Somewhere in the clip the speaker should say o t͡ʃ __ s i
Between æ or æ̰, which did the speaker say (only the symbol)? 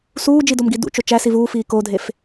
æ